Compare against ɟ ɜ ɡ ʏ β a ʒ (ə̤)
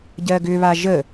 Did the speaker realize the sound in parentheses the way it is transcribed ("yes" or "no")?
no